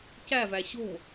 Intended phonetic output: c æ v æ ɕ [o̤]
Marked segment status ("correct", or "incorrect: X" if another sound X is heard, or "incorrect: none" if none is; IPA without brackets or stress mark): correct